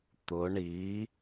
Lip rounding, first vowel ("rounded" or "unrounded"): rounded